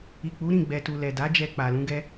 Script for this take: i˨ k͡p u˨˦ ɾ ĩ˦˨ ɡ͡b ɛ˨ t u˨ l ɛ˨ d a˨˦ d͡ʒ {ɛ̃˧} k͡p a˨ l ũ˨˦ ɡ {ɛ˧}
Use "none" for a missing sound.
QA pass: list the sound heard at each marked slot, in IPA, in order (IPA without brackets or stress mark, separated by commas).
ɛ˧, ɛ˧